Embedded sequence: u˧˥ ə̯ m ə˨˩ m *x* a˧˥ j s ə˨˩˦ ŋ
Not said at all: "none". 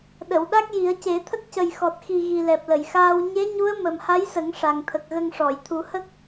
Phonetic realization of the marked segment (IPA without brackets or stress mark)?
h